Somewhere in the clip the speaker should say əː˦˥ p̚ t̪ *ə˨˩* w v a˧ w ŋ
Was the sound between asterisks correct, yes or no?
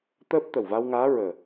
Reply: yes